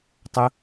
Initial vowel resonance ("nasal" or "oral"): oral